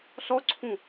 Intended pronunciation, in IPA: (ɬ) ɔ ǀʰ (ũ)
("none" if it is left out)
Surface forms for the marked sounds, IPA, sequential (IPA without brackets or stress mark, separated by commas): ɬ, ũ